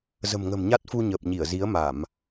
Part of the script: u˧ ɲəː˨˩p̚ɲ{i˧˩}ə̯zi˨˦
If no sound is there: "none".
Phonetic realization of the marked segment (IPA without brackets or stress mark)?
i˧˩